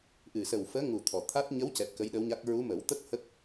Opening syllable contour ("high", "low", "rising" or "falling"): low